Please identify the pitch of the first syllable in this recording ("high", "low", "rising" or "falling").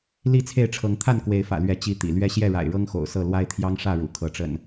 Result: falling